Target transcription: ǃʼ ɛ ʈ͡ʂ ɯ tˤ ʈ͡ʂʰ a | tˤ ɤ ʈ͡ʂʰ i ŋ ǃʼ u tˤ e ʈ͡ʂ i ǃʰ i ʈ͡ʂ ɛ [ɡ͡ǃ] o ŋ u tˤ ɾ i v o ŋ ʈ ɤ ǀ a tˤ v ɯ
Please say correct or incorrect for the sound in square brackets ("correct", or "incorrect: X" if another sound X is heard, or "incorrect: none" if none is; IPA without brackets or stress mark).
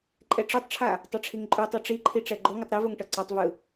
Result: correct